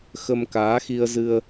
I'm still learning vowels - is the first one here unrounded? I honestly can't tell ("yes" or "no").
yes